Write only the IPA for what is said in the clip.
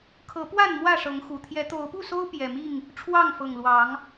kʰɤ˨˦pwa˥˨n mwä˥˨ʂɤ˨˦ŋxu˨˩ t̪ʰjɛ˨˦t̪o˨˦ʊ̯pu˥˨so˦ʊ̯ pjɛ˨˩mi˥˨ŋ | ʈ͡ʂʰwɑ˥˨ŋfɤ˨˩ŋ lwɑ˨˦ŋ

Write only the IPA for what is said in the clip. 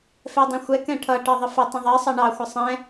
fɛdˤĩxʷɛ kɛ̃ʈʰʌ ʈɜðˤəfə tˤə̃ðˤɛ sˤʌɳɑ xʷəsˤɛ̃

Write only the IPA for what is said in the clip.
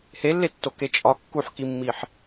helːetːoke t͡ʃʼɒ kːuħkimːiħ

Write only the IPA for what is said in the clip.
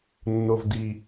nːo˨vdi˨

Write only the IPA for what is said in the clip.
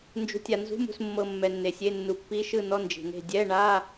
nd͡ʒṳ˨tʲa˨nzṳ˧˥˧m ṳ˨smːɤ˨ mːɛ˨nːe˨sʲe˧˥˧ nːu˨pːi˧˥˧ ʃɯ˥˨nɔ˧˥˧ nd͡ʒi̤˨ne̤˥˨ dʲɛ˧˥˧ɳa˧˥˧

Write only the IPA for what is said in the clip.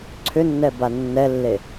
ǀʰʏnːɛba nːɛlːe

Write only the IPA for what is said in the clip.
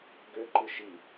ɡøǃɯ ʃi

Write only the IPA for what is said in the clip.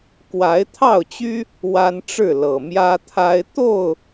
kwa˨˦ɪ̯t̪ʰɑ˥˨ʊ̯t͡ɕy˦ | wa˦nʈ͡ʂɻ̩˥˨lɤ˨˩ mjä˦t̪ʰa˦ɪ̯ t̪o˥˨ʊ̯

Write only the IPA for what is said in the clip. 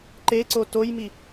ǃeǀo tojmi

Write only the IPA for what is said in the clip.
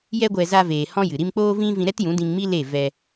jɛ˦ɡʷɛ˧ za˧veː˨ hɔ̃˦jɨ˨ɾi˦m k͡poː˦vĩ˦ vĩ˧ɾɛ˦tjũ˨˦ dĩ˧ŋmi˦ le˦˨ vɛ˧

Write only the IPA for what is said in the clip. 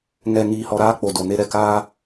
ŋɛ˨ ŋiː˨hɔ˨ɾaː˦ k͡po˨do˨ ne˦ɾɛ˨kaː˦

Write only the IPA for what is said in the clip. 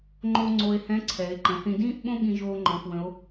ŋ͡ǃo˥ ŋ͡ǀo˧e̯hɛ̃˧˥ ǀʰɛ˩˧e̯ǃə̃˩˧θĩ˧ dĩː˥ʔɓõ˥ɠĩ˧ʒoː˧ ŋ͡ǃɔ̃˧xwə̃˧˥o̯

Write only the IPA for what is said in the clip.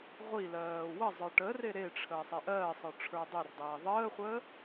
ʁʷi lɜːwəzˤə˞ ʈəre ɾeʈ͡ʂʰəː sˤeʔɜːsˤə˞ ʈ͡ʂʰə˞dˤerdˤeː ðˤəːχʷəː

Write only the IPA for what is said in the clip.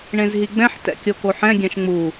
ɳẽzɦiɡ͡bɛ̃ħ tɛ̰kʲokoħɛ̃ ɡʲɛ̃ʃŋ͡mu

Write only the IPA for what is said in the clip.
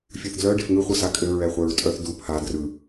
fʲɯθdlœ ɖefŋɯχʷɯ sakʼɘ ɹɛχʷɛɹtʼœθ du pʰa drɯ

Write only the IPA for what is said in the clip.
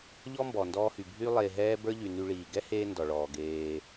ʎɔ˦ mbɔ˨ndɔː˧hy˨ bʱy˧ lˠeː˧ɦɛː˦ bə˞˦ ʎy˨ ny˧ɭiː˨ ɡɛ˦heː˧ ndɔ˨ɭɔː˨ɡeː˧

